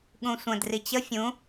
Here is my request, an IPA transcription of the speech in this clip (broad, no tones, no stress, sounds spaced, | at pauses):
ɠ ũ sʷ ə̃ d r i t͡ɕ ə fʲ ũ